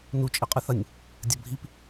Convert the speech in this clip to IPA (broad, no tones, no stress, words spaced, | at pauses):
nut͡ʃʼiqʼɨθɐnʲ | dʲɐbʱip